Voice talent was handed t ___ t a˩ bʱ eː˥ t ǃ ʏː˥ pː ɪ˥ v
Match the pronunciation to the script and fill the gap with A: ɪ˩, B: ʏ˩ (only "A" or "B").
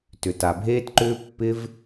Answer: B